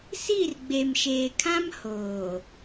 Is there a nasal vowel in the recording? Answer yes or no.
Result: yes